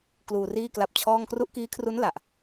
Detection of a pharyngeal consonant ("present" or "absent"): absent